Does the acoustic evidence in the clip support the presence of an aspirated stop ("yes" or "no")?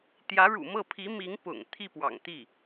yes